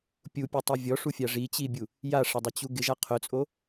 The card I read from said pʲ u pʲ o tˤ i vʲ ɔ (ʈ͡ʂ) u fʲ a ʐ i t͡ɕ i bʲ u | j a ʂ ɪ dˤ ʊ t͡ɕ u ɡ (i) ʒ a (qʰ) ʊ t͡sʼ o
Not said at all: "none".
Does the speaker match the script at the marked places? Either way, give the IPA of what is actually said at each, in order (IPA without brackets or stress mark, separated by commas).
ʂ, ɪ, qʰ